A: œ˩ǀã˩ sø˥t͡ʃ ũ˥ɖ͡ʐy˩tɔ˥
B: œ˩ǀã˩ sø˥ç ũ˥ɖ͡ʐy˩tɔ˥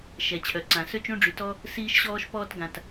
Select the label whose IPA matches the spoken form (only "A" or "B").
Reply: A